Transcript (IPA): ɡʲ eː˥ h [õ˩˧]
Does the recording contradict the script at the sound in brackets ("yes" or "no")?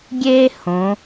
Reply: no